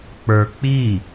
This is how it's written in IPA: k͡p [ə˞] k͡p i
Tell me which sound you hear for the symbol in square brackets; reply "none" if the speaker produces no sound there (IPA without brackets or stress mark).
ə˞